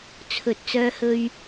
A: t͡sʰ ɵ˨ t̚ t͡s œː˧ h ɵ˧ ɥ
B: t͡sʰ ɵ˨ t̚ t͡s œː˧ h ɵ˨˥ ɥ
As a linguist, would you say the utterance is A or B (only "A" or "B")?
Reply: A